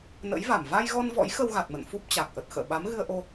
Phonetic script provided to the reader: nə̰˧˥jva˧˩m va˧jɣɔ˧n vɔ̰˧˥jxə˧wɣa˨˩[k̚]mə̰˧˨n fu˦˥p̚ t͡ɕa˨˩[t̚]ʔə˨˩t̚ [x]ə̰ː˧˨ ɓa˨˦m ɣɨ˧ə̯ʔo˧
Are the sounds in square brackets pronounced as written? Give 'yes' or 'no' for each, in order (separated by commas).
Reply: no, no, yes